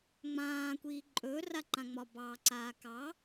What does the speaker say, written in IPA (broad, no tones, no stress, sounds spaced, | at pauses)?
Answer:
ŋ͡m ãː kʷ iː ǃʼ ɵː r a ǃ ã ŋ͡m ɒ b ɑ ǀ aː k ɑ